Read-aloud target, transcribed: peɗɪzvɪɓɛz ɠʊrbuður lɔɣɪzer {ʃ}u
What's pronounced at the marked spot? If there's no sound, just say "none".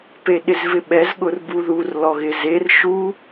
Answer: ʃ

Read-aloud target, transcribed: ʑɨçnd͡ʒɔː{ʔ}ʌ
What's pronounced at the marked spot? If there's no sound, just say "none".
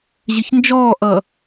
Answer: ʔ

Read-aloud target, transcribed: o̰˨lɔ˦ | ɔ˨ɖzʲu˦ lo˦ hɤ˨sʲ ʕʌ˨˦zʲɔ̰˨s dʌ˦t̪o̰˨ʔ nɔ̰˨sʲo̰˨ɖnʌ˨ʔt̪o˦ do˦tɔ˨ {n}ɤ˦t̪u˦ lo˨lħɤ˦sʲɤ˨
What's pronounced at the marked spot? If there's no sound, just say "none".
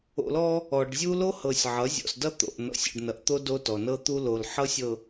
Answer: n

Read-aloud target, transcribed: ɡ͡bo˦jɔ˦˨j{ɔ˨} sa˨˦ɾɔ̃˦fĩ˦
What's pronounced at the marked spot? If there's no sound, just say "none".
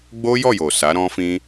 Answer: o˨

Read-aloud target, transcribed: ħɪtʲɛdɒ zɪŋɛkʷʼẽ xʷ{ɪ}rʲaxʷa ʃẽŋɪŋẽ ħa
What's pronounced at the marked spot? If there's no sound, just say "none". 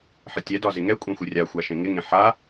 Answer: ɪ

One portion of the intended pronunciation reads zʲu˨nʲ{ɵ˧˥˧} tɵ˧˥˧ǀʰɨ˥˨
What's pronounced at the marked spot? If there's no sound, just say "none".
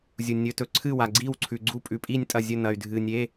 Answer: ɵ˧˥˧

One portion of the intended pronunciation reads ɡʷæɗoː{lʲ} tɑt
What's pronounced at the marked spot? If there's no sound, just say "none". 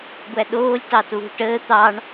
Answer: lʲ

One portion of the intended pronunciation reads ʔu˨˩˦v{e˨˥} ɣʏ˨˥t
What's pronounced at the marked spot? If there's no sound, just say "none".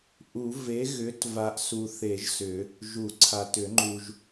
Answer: e˨˥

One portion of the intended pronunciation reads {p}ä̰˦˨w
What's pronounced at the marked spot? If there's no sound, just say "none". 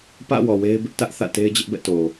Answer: p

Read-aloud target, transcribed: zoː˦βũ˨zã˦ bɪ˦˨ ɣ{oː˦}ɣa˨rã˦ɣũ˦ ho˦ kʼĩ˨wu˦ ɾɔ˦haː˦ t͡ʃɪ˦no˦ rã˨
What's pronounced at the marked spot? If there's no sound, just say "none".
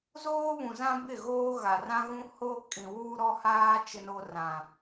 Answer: oː˦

